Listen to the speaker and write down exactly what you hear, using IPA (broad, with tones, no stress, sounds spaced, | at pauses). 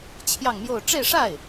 t͡ɕʰ j ɑ˥˧ ŋ m j o˥˧ ʊ̯ ʈ͡ʂ e˥˧ ɪ̯ ʂ a˥˩ ɪ̯